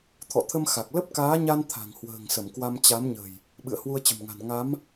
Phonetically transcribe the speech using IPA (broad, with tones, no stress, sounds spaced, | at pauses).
t̪ʰ ɔ̰˧˨ t̪ʰ ə˧ m x a˨˩ k̚ l ə˦˥ p̚ k aː˨˦ ɲ a˧ n t̪ʰ a̤˨˩ ŋ h w ə̤ː˨˩ ŋ s ə˧˩ m k w a˧ m t͡ɕ a˨˦ m ɲ ə̤˨˩ j | ɓ ɨ̰˧˨ ə̯ h w u˧ ə̯ t͡ɕ ə̤˨˩ m ŋ a̤˨˩ n ŋ a˨˦ m